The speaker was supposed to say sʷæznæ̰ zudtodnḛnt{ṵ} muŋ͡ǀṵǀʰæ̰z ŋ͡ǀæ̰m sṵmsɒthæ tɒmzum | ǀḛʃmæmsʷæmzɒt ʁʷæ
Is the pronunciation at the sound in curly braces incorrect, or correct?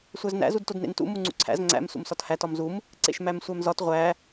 correct